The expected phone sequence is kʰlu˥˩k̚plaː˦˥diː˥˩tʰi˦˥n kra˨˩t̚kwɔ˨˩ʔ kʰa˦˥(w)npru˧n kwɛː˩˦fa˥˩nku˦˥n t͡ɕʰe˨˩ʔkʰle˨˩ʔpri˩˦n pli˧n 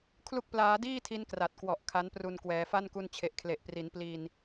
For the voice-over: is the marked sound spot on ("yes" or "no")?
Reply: no